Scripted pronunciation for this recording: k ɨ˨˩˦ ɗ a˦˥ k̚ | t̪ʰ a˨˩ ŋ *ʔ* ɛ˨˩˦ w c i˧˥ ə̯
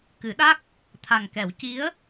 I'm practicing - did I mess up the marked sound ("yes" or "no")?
yes